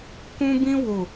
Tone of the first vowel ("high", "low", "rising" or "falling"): high